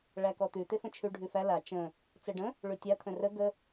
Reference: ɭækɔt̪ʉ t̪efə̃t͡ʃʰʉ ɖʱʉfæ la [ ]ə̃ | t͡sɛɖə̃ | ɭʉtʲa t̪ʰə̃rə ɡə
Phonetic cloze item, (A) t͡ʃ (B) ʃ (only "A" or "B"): A